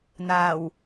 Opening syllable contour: low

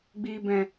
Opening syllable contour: low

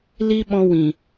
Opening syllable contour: high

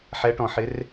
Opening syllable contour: rising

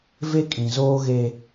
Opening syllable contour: high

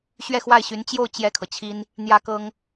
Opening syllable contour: falling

